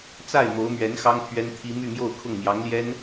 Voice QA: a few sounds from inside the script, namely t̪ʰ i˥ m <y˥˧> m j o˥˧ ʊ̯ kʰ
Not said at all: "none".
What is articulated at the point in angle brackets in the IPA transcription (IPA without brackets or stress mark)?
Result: y˥˧